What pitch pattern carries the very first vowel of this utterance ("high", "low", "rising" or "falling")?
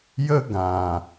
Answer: high